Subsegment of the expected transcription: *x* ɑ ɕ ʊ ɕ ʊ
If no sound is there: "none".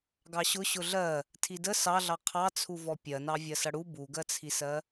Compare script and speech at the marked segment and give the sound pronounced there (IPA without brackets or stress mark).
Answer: ɡ